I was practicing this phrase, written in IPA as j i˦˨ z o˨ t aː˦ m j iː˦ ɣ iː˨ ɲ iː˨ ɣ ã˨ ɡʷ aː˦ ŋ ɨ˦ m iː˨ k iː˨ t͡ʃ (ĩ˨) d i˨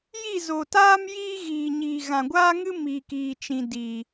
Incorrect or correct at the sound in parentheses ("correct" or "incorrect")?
correct